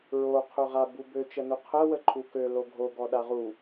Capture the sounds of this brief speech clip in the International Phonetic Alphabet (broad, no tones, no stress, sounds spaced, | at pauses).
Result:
ɹ o qʰ ø ʁ a b u b ø t͡ʃ ə n u qʰ ə w ə ǃʰ u k ø l o ɡʱ o ɡ ɔ ɗ a ʁ u